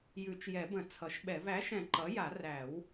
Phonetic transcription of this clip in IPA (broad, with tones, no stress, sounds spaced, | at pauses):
j ʉ˨˩˦ t͡ʃ j ɛ˨˩˦ b ə̃˨˩˦ t͡sʰ ʌ˩˥ ʃ ɓ ɛ˨˩˦ v æ˩˥ ʃ ɛ̃˨˩˦ ǃ ʌ˩˥ j a˨˩˦ r æ˨˩˦ w